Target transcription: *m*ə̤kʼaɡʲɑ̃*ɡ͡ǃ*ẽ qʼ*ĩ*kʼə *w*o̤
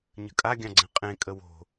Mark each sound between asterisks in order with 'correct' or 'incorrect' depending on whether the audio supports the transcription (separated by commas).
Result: incorrect, incorrect, incorrect, correct